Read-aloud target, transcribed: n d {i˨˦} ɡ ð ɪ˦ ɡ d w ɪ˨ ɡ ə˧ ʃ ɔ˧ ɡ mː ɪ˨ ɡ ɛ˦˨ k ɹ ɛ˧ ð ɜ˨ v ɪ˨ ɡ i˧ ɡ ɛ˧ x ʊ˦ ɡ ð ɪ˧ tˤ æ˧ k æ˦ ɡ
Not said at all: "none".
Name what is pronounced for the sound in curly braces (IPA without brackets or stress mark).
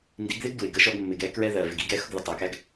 i˨˦